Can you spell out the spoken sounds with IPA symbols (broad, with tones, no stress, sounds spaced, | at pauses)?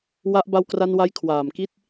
w a˦˥ ʔ b a˧ w k r a˧ n w a˧ j kʰ w aː˨˩ m k i˦˥ t̚